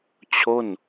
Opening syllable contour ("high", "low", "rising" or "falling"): falling